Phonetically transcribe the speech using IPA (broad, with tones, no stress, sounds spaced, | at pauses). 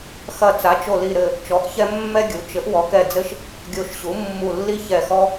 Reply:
x ɐ˧˩ t͡s a˩˥ t͡ʃ o˧˩ l i˧˩ ɾ ɘ˧˩ | t͡ʃ ɔ˩˥ ʔ ç ɛ˦ mː ɛ˦ ɡʲ u˩˥ t͡ʃ ɘ˩˥ ʔ w ɔ˩˥ k ɛ˧˩ d͡z ɘ˦ ʃ | ɡʲ o˧˩ ʃ ɕ u˩˥ mː u˧˩ lː i˦ ç ɛ˧˩ x ɔ˦